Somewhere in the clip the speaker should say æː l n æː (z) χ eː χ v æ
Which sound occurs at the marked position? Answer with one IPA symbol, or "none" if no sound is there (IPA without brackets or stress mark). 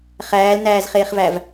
z